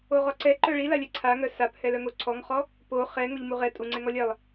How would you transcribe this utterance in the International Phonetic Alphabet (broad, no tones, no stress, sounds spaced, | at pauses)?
o ʁ ɔ ǀ ɛ ǃ œ ɭ i l a lʲ ɛ ǀʰ a ŋ œ s a p h ɛ l œ ŋ o ǀʰ ɔ ŋ χ ɔ | p o χ ɛ ŋ o ʎ m u ʁ ɛ tʼ u ŋ͡ǀ ɛ ŋ ɔ lʲ ɛ lˠ